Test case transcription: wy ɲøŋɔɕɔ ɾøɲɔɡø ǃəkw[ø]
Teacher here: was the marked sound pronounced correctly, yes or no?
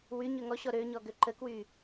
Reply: no